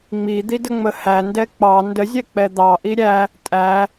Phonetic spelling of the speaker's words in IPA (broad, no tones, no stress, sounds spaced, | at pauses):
ŋ͡m i d̪ i d ə ŋ͡m ə h æ n d ɛ k͡p ɑ n d ə zʲ ɛ k͡p ɛ d̪ ɑ ʔ i ɾʲ æ | tʼ æ